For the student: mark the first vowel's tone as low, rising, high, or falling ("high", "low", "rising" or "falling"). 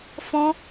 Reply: high